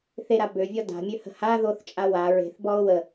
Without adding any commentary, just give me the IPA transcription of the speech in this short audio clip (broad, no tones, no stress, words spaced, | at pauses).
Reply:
θeɾa bøvʲɔ da̤mʲøhə̤ ha ðoθt͡ʃʼa wa ɹe̤θbɔo̯ wə